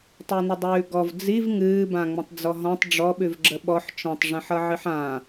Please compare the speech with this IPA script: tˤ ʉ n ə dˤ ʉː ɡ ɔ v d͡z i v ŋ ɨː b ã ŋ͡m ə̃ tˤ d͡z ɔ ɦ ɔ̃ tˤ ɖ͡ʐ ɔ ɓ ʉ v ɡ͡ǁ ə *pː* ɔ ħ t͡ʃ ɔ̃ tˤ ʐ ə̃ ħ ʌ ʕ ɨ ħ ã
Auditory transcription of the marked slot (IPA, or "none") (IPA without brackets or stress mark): ɓ